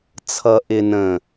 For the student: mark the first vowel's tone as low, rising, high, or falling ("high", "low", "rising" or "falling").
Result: low